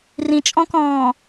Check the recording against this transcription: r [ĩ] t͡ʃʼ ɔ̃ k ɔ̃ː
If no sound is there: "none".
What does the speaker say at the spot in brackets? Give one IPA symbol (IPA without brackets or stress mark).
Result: ĩ